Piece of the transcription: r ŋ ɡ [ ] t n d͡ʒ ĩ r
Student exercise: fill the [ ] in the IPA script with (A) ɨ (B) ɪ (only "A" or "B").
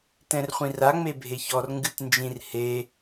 A